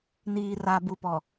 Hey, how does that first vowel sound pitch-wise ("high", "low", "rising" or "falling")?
low